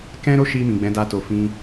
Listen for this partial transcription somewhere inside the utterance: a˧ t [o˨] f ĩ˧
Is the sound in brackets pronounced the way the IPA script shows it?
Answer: yes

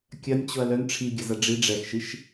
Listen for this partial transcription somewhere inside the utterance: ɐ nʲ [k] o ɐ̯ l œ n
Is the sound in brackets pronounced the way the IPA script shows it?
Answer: no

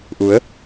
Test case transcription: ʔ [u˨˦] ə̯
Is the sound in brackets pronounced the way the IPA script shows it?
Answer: yes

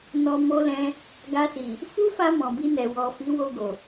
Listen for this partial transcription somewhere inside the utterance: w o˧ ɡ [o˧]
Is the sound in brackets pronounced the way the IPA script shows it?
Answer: no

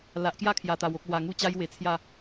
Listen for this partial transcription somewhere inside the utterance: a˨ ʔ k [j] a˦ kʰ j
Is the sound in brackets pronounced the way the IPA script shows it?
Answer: yes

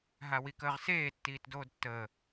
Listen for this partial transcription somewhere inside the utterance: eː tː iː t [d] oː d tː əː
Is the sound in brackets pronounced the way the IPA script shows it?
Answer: yes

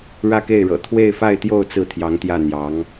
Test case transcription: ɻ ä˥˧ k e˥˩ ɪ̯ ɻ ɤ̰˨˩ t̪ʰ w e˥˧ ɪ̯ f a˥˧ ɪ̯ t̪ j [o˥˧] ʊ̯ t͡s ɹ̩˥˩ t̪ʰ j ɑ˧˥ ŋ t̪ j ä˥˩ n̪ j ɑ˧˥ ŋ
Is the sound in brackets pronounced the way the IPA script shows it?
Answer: yes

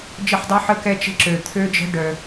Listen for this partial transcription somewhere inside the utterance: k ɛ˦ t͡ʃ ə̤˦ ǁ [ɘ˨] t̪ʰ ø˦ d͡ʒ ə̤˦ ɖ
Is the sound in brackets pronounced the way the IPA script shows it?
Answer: no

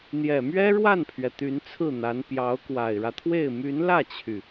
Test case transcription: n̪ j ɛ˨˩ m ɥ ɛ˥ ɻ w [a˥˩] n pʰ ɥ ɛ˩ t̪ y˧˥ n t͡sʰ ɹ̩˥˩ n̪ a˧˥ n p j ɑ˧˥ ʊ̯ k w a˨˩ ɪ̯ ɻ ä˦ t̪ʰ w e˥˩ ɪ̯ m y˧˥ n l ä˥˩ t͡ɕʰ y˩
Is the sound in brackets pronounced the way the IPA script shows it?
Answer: yes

